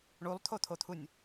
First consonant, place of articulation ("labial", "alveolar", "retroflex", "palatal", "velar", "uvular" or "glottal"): retroflex